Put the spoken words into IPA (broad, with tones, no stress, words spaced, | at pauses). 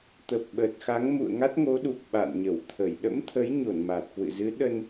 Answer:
t̪ə˨˩p̚ɓə˨˩t̚xa˨˦ŋ mṵ˧˨ə̯ŋa˦˥t̚ ŋo˨˦ɗu˨˩k̚ ɓa̰˧˨nɲə˧˩wt̪ʰə˧˩j ɗə̰˧˥mt̪ʰə˨˦jɲo˧˩n maː˨˩t̚kwɨ̰˧˨zɨ˨˦ ɗə˧n